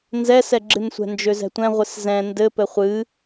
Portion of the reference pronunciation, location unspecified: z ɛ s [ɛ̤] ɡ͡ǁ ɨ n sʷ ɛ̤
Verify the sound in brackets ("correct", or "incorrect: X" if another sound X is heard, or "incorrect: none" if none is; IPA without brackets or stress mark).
incorrect: ɛ